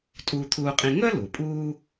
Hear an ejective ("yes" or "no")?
yes